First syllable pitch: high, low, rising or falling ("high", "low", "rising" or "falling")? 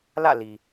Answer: falling